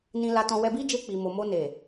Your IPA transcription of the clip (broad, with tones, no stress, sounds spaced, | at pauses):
n ĩ˧ l a˧ t ɔ̃˧ w ɛ˧ b i˦ d͡ʒ e˧ k͡p i˨ m o˨ m o˧ n e˨